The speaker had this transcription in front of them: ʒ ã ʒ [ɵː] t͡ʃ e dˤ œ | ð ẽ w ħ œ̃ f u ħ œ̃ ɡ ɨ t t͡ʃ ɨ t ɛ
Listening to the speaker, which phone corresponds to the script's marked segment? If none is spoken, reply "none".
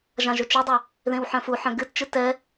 ɵ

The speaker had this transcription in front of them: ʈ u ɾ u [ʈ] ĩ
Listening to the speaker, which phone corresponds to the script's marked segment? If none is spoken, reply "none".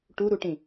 ʈ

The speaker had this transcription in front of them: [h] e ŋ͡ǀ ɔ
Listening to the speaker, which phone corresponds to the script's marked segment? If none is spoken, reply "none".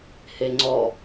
h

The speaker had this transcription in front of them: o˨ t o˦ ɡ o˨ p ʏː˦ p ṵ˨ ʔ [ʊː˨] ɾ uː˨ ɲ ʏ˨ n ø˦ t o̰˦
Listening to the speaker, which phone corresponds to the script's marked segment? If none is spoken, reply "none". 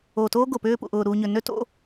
ʊː˨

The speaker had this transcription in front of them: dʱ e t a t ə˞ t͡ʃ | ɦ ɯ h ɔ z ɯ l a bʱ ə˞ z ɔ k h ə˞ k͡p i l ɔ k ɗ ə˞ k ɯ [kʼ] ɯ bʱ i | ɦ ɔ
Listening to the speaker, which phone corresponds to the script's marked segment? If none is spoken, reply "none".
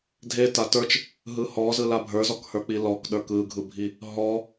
ɡʱ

